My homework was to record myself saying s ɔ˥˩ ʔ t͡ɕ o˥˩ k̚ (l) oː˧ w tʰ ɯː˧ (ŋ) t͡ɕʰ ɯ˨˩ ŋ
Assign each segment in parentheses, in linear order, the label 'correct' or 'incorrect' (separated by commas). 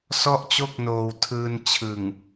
incorrect, incorrect